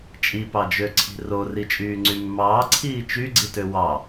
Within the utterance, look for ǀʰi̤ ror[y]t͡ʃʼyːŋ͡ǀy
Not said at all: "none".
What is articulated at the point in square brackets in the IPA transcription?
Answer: i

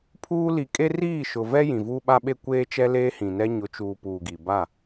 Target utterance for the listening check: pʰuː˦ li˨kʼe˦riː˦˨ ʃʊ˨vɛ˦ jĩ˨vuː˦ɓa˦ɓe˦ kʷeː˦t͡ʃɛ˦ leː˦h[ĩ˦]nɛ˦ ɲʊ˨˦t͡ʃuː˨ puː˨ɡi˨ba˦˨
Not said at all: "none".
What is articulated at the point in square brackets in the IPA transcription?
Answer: ĩ˨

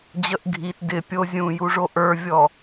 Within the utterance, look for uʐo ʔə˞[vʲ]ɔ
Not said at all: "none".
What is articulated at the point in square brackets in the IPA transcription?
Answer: vʲ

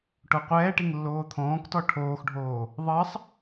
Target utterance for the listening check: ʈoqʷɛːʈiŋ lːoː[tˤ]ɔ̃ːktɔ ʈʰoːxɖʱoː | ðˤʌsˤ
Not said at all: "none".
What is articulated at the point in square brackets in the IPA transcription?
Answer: t̪ʰ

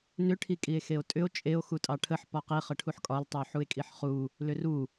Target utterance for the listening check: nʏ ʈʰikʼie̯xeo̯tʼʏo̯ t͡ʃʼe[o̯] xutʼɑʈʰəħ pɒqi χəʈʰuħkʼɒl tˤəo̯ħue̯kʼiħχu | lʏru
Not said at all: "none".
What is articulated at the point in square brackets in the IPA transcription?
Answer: o̯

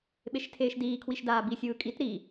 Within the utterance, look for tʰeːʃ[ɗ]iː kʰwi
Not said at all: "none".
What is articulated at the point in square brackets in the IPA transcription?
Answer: d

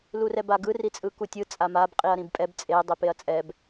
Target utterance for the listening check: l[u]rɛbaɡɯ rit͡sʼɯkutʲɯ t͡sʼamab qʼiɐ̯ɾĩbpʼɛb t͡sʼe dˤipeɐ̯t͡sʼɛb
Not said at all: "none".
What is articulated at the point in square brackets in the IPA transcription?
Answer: u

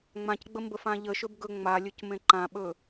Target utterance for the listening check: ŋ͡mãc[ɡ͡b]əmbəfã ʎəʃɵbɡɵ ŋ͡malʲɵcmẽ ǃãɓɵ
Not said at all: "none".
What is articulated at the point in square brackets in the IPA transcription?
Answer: ɡ͡b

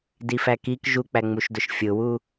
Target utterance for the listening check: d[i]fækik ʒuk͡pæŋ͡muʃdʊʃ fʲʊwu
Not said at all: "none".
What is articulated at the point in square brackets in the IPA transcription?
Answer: i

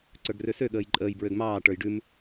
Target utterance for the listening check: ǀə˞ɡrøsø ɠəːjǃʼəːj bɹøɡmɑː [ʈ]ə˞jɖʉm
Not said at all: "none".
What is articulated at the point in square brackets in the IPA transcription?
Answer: ʈ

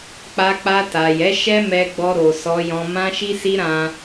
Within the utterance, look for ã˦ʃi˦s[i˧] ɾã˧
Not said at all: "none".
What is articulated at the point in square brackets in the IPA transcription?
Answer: i˦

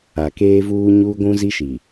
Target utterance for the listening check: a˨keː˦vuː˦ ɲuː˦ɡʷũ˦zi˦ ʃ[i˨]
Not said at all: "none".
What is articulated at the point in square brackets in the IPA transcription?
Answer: i˨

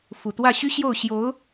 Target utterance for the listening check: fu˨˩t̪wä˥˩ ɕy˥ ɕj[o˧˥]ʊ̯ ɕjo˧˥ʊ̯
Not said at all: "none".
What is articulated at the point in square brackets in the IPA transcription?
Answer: o˥˩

